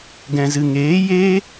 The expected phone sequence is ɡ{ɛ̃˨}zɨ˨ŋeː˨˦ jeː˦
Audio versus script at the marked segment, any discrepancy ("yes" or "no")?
no